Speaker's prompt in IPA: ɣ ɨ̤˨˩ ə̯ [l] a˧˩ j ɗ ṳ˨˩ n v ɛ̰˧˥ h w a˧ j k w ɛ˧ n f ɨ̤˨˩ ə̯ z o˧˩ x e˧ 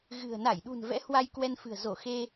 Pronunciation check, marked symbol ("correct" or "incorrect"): incorrect